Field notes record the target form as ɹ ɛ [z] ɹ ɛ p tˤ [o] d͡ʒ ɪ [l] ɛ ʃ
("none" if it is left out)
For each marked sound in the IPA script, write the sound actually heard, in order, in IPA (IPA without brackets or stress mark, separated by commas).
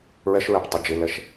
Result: ʃ, o, l